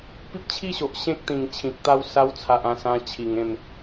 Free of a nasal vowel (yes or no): no